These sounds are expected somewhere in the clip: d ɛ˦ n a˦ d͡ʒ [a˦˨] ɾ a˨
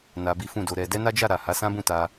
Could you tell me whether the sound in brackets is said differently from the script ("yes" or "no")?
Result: no